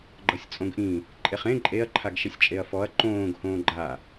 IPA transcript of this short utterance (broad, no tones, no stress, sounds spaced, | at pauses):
ɡ͡ǃ ɤ sʲ t͡sʼ õ ɡ ʔ ĩ | ǃʼ e χ ẽ ǃʼ e ɐ̯ ǃʰ a ɡ ʃ i sʲ t͡ʃʼ e ɐ̯ f ɔ ɐ̯ ǃ õː ɡ h õː ɡ͡ǃ a